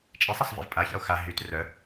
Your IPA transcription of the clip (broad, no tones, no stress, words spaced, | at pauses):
t͡ʃʼisˤasˤvḛv pʼaça̰o̯ xa ɦyt rœ